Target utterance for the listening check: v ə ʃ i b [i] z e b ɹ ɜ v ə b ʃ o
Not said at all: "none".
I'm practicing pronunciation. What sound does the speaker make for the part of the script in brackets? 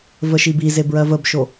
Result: i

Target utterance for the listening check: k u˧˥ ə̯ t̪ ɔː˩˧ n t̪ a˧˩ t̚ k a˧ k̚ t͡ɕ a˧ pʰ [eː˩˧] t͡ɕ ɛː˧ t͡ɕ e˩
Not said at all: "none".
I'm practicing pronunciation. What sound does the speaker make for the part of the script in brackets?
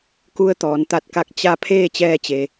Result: eː˥˨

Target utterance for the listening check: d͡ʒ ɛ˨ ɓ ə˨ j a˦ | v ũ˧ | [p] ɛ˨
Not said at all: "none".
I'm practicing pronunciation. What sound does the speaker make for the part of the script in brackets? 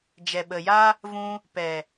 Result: p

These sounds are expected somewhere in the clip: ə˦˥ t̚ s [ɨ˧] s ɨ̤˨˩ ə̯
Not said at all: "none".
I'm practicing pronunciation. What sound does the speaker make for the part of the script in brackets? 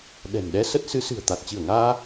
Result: ɨ˨˦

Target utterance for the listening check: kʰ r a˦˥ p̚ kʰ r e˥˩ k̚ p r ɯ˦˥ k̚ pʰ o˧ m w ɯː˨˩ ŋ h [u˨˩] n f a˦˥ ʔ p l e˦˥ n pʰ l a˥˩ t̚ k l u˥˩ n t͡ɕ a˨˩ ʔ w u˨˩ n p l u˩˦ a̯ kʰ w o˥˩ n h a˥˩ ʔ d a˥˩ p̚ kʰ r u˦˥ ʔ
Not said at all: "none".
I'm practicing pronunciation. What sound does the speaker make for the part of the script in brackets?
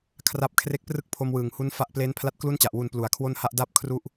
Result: u˦˥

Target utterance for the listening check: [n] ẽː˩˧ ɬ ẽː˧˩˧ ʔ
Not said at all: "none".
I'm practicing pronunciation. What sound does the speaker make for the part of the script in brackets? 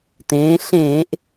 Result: t̪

